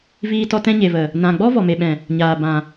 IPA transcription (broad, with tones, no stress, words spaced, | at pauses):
viː˧tɔ˧ tɛ̃˧ɲe˨və˨ | nã˨ ɡ͡bɔ˦vɔ˨me˨ɓɛ̃˨ | ɲaː˨ bã˨